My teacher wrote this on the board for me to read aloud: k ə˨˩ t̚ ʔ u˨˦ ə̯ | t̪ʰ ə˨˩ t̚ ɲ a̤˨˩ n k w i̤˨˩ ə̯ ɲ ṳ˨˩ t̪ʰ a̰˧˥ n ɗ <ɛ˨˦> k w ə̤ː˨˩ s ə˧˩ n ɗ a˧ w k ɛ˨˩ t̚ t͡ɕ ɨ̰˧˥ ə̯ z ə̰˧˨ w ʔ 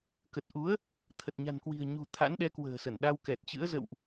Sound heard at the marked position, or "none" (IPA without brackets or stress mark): ɛ˨˦